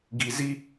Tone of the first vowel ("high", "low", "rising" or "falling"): low